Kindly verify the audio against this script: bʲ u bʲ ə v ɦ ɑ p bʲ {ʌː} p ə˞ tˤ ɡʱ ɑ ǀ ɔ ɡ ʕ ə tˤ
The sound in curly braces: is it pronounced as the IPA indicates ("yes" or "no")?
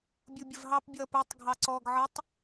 yes